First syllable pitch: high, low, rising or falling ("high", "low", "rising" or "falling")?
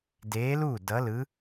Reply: rising